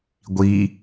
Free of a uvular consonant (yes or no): yes